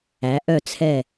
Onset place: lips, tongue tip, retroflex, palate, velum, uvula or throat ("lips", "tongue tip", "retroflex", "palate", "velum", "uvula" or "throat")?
throat